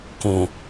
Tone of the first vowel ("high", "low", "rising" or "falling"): low